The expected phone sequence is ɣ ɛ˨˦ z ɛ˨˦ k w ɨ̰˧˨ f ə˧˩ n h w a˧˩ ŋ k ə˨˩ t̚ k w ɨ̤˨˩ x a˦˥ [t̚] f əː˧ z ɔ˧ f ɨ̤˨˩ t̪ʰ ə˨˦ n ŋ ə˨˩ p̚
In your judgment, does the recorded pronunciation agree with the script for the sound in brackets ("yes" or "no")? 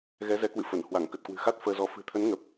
yes